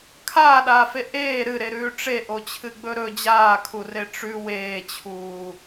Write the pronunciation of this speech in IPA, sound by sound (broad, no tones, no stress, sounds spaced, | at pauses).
kʰ aː ɗ aː f e ʔ eː ɾ ɨ ɾ e ɾ ʉː ʈ͡ʂ e ʔ o t͡ɕʰ ɨ ɡ͡b ɵ ɾ ɵ d͡ʑ aː kʰ u r e ʈ͡ʂ ʉ w eː t͡ɕʰ uː